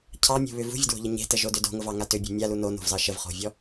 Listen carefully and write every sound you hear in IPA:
cʰ ɑ mʲ o̤ β ʏ v ṳ vʲ ə d w o̤ ʎ ə ɲ e̤ t ə ʒ o d ʏ d o̤ ŋ ʊ v ɑ ŋ a t ʏ bʲ o̤ mʲ a l u n o n o̤ v z ɑ ʃ ə v χ o̤ vʲ ɔ

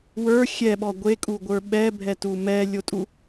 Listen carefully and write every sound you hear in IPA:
w ə˞ xʲ ɛ ɓ ɔ ɡʷ e kʼ u ɡʷ ə˞ ɓ ɛ bʱ ɛ t u m ɛ lʲ o tʼ u

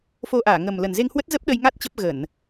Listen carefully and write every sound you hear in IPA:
f o˧ ʔ aː˧˩ ŋ ə˨˩ m l ə˨˩ n z e˧ ŋ h w ə˦˥ t̚ z ə˦˥ p̚ ɗ ə˧ j ŋ a˦˥ t̚ t͡ɕ ə˦˥ p̚ ɣ ə˧˩˨ n

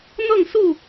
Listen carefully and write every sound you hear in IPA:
n̪ ɤ˥˨ ŋ s u˥˨

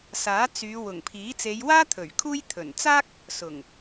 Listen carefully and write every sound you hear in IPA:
s aː˨˥ t͡s yː˨˧ w ʊ˨˩ ŋ pʰ iː˨˥ t͡s e˨˧ j w aː˥ t̪ʰ ɵ˨˩ ɥ kʰ uː˥ j t̪ʰ ɵ˨˩ n t͡s aː˥ k̚ | s ʊ˨˩ ŋ

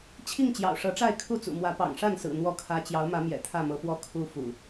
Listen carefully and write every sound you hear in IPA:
t͡ɕʰ i˥˨ ŋ t͡ɕ j ɑ̰˨˩ ʊ̯ ʂ ɤ˨˦ ʈ͡ʂ a˥˨ ɪ̯ kʰ u˥˨ t͡s ṵ˨˩ m w ä˨˦ p ɑ̰˨˩ ŋ ʂ a˥˨ n s ɹ̩˨˩ n̪ w ɔ˥˨ kʰ ä˦ t͡ɕ j ɑ˨˦ ʊ̯ m ä˨˦ m j ɛ̰˨˩ t̪ʰ ä˥˨ m ɤ˨˦ p w ɔ˦ kʰ u˨˦ f ṵ˨˩

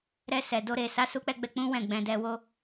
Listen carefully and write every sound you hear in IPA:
ɾ ɛ˧ s ɛ˨ d o˧ ɾ e˨ s a˨˦ s u˧ k͡p ɛ˧ ɡ͡b ɛ˧ k͡p ũ˦ w ɛ̃˦˨ ɡ͡b ɛ̃˧ d ɛ˧ w o˦

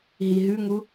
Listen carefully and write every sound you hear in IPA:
ɦ i ɦ ʉ ŋ u

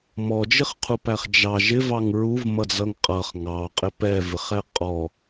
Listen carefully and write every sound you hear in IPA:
m ɔ d͡ʒ ɪ χ qʰ u p æ χ d͡ʒ ɑ ʒ ɪ v ɑ ŋ ɹ u v m ʌ d͡z ʌ ŋ qʼ ʌ χ ŋ ɑ qʼ ɪ p ɛ v ɪ χ ɛ qʼ ɔ

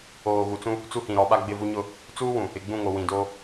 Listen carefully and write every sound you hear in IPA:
oː˨ ɣ u˨ t͡s ũ˦ | t͡s u˦ h ĩ˨ ɾ ɔ˨˦ ɓ a˦ ɡ͡b ɪ˦˨ v u˦ ɲ ʊ˦˨ | t͡s uː˦ w ũ˨ | ɪ˨ ɡ͡b ũ˦˨ ŋ o˨ w ĩ˨ d oː˦

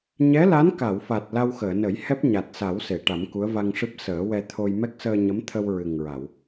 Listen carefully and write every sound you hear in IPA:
ɲ ɛ˧˥ l a˧˥ n k a˨˩˨ w f a˨˩ t̚ l a˧ w x əː˨˩˨ n ə˨˩˦ j h ɛ˦˥ p̚ ɲ a˨˩ t̚ s a˨˩˦ w s e˨˩˨ ʈ a˨˩˦ m k u˧˥ ə̯ v a˧ ŋ ʂ ɨ˦˥ p̚ s əː˨˩˦ w ɛ˧ t̪ʰ o˧ j m ɛ˦˥ k̚ s əː˧ ɲ ə˧˥ m t̪ʰ ə˧ w ɹ ɨ˨˩ ŋ ɹ a˨˩˨ w

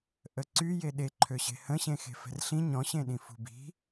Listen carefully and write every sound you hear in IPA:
ʔ ə ǀ y j e ɗ e ǃʰ ø ɕ e̤ h ə̃ ɕ ẽ x e̤ f ɛ̤ r ɬ ĩ ɲ ɔ̃ ɕ ẽ ɗ ĩ f ṳ b i̤

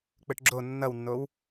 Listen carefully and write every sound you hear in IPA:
k͡p ɯ ʈ ɡ͡ǁ o nː ʌ w nː o w

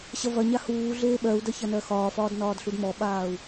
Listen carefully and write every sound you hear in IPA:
ɕ ɐ v ɐ ɲ a h uː ɮ eː ɓ ɜ u̯ d ɐ ç ɐ n ɜ x ɒː f ɒː d n ɒː d ɬ u d m ɔ ɓ aː u̯

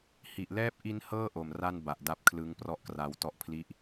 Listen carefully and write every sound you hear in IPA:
h i˨˩ ʔ l ɛː˥˩ p̚ ʔ i˦˥ n h ɤː˥˩ ʔ o˨˩ m r a˥˩ n b a˨˩ ʔ d a˦˥ p̚ kʰ l ɯ˦˥ ŋ p r ɔ˥˩ ʔ k r a˧ w t ɔ˥˩ ʔ pʰ l i˥˩ ʔ

